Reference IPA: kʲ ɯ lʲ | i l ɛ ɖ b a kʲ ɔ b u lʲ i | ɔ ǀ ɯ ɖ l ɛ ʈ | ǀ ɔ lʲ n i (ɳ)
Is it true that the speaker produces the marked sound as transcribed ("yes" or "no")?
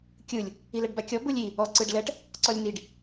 no